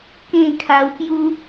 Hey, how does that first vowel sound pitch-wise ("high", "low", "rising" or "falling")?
falling